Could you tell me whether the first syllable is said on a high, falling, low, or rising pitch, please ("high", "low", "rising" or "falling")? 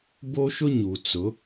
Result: high